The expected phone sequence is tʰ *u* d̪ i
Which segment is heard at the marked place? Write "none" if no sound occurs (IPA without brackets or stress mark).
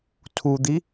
u